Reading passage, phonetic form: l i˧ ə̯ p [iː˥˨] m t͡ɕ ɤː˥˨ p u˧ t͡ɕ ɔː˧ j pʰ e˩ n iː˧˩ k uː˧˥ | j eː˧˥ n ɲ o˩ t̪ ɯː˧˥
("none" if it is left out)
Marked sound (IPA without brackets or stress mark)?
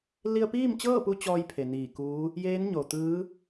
iː˥˨